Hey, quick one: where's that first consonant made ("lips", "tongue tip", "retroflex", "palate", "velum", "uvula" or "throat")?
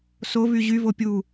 tongue tip